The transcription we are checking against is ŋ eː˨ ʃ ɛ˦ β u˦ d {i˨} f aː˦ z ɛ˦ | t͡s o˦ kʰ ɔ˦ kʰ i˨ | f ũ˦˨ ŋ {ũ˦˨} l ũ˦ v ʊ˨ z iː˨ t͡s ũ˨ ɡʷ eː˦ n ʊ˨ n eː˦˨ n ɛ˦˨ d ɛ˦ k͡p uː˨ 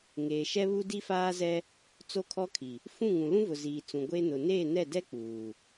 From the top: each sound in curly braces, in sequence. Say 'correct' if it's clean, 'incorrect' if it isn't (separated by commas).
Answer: incorrect, incorrect